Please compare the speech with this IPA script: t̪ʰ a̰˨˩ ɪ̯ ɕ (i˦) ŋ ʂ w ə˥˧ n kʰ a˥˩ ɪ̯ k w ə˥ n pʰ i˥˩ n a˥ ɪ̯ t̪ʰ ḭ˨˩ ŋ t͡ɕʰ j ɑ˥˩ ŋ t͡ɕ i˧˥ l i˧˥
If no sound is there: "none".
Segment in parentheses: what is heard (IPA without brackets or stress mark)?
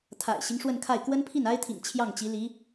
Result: i˦